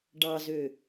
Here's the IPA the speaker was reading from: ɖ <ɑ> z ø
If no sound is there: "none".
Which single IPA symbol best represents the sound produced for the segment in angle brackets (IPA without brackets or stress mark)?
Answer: ɑ